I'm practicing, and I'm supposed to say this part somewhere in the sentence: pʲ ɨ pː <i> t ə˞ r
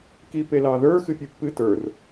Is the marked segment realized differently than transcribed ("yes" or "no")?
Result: yes